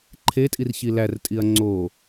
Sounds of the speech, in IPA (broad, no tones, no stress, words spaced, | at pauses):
ǃʰetʼir çilærtʼiɐ̯ ŋ͡ǀo